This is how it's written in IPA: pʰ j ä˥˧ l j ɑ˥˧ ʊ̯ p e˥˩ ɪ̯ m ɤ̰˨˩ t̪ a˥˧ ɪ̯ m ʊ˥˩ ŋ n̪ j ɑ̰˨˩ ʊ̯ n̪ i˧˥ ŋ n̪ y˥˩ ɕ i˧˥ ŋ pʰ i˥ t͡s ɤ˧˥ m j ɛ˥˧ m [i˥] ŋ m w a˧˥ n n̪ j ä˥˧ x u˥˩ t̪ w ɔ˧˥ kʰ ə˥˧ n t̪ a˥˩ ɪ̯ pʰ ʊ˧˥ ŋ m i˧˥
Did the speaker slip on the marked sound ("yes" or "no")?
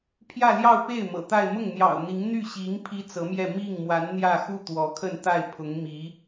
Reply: yes